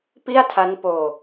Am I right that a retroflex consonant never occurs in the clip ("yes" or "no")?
yes